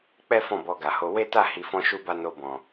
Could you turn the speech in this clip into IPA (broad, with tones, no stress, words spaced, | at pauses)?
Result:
k͡pɛ˦ fɔ̃˦˨bɔ˧ɡa˨ho˧ we˦ta˦˨ hi˧fɔ̃˦ʃu˦ba˦ no˧bɔ̃˨